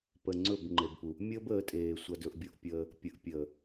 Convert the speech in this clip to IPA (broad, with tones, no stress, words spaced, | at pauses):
pə˨ŋ͡ǀɵ˦˨b ŋ͡ǃe˨bpu˨ | mʲəː˦bəː˨˦tʼeː˨ sʷɐ˦dɵ˦ʔbʲo˦ʔpʲəː˦ | pʲə˨ʔpʲəː˨